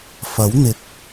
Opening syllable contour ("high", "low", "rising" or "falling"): rising